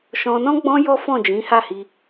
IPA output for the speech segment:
ʃ ɔ̃˧ n ɔ̃˦ ɡ͡b ɔ̃˦ j ɔ˦ f ɔ̃˦˨ d͡ʒ ĩ˨˦ h a˦˨ h i˧

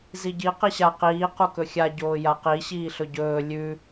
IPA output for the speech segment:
z i ɟ i q i ɕ a q iː q u k ɵ xʲ a ɟ oː j a q i ɕ iː ɬ ɵ ɟ ɵː lʲ ʉ

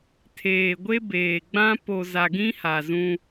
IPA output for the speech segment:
tʰ eː˨ ɡʷ e˦ b eː˨ ɡ͡b ã˦ p o˨ z a˨ ɡ ĩ˦ h a˨ z ũ˦

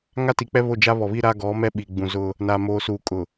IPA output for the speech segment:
ŋ a˦ t i˨ k͡p ɛ˦ β o˦˨ d͡ʒ a˦ β ɔ˨ β i˦ ɾ a˦ ɡ ɔ˨˦ m ɛ˦ ɓ i˨ ɡ͡b ũ˨ z ʊ˦ | n a˨ m oː˨ s uː˨ kʼ ʊ˨

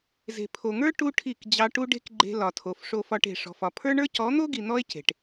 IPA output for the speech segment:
z e̤˨ pʰ o˨ ŋ ə˞˦ ʈ u˦ ʈʰ i˦˨ k d͡ʑ ɑ˧ ʈ u˦ ɖ e̤˦ k ɡ͡ǃ e̤˧ l ɒ˨ tʰ o˨ f ʂ o˧ f ɒ˧ ʈ e̤˨ ʂ ɔ̤˨ f ɒ˨ pʰ ə˞˦ ɳ ə˞˦ c ɔ˨˦ n̪ o˦ ɡ i˨ n̪ ɔ˦ e̯ c e̤˨ ʈ

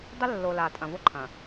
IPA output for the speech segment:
dˤ ɵ˦ lː o˨ l a˨ tʼ ɐ̃˨ v o˦ ǃʰ ɐ̃˨

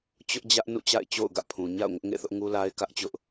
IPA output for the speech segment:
t͡ɕ ʊ˦ ʔ d͡ʑ ä˦ ʔ n ṵ˦˨ t͡ɕ a̰˦˨ ɪ̯ t͡ɕ o̰˦˨ ʊ̯ ɡ ä̰˦˨ pʰ ũ˨ ɲ a̰˦˨ ʊ̯ ŋ ʊ˦ ʔ ŋ ḛ˦˨ θ ʊ˦ ʔ ŋ u˦ l a˦ ɪ̯ k ä˦ ʔ t͡ɕ ʊ˦ ʔ

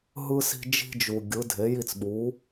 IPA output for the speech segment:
ɦ ɯ˥ s i̤˥ d͡ʒ i̤˥ d͡ʒ u˨ ɡʲ ɯ˩˥ dʱ e˩˥ j i˥˩ t͡s ɓ u˩˥

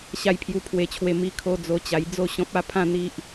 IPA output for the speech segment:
ɕ a˧ j pʰ j u˧ pʰ w e˧ t͡ɕʰ w e˧ m i˧ kʰ o˧ d͡z o˧ t͡ɕ a˧ j d͡z o˥˧ ɕ ɔ̃˦ p̚ a˦ pʰ ã˦ n̪ i˦ ʔ

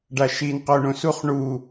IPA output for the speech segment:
ɖ a ʃ i n q o ɳ õ s u χ ɳ u

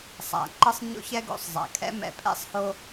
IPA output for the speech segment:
sˤ a̰˨ ǃ ɤ˦ sˤ ɲ o̰˦ ç ɛ˦ ɡ o̰˦˨ sˤ zˤ a̰˨ kʼ ɛ̰˦ m ɛ̰˨ pʼ ɛ̰˦ sˤ h o˦

